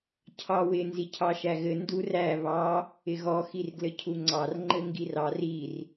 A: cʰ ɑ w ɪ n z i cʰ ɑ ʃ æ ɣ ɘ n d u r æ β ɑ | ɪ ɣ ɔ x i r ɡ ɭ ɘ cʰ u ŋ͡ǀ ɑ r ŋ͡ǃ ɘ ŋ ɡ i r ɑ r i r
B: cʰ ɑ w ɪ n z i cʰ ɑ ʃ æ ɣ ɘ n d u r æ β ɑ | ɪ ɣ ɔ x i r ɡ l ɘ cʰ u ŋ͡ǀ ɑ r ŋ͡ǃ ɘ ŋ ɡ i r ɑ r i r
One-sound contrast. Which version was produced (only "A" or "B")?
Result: B